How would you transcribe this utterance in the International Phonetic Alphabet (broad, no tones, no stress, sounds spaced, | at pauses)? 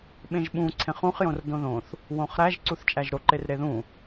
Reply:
ɓ ẽ ʒ ɓ ũ ǀʰ ẽ χ ũ χ j õ r d õ ð õ θ | w õ χ ɾ æ ʒ ǀ u θ t͡ʃʼ æ ʒ ɾ o ǃ e r ɾ e ð ũ